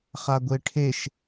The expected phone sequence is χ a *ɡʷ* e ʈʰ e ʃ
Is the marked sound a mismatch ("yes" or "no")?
no